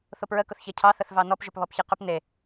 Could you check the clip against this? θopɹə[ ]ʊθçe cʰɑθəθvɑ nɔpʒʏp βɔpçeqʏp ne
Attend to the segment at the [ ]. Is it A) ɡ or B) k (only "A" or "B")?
B